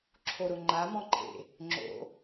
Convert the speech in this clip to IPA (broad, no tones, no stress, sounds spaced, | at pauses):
ǁʰ o ɾ ʊ ŋ͡ǃ a m ɔ̃ ǃʰ ḛ | ŋ͡ǁ o̰